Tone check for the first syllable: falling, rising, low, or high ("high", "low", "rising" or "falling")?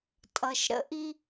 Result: low